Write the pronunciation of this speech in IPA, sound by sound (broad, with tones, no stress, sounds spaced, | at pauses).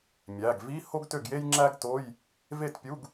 mʲ æ˩˧˩ ɡ v i˧˥˧ h o˥ ɡ t ø˥˩ ɡ j e˥ j ŋ͡ǁ æ˥ ɡ t o˧˥˧ j | v e˥˩ t pʲ u˧˥˧ ɡ